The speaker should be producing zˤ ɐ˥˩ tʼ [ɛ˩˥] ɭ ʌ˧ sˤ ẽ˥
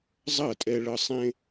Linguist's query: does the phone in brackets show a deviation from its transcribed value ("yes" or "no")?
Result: yes